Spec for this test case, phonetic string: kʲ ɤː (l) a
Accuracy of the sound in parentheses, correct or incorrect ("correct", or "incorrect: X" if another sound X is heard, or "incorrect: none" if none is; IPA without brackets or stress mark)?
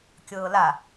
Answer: correct